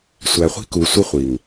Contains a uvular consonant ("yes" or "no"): yes